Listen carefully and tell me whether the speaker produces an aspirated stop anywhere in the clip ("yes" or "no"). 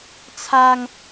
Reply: yes